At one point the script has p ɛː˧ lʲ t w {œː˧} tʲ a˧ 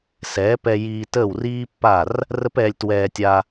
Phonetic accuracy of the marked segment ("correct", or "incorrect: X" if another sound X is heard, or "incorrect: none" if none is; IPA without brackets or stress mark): incorrect: ɛː˧